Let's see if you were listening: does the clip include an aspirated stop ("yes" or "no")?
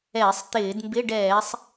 no